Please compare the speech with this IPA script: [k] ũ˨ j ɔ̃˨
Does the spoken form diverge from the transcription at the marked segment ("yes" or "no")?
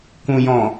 no